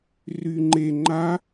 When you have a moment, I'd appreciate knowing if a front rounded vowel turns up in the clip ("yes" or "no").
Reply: yes